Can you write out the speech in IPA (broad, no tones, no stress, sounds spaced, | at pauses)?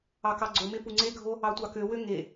ɑ k ɑ ɡ͡ǀ o m e p u ŋ͡ǀ e ɡʱ o | ɑ tʷ ɑ k ø w ø ŋ e